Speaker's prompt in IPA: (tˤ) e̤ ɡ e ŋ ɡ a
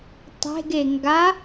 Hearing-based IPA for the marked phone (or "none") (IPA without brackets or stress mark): tˤ